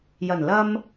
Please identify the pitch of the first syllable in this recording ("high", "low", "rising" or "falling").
low